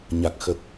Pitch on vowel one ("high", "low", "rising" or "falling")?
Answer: low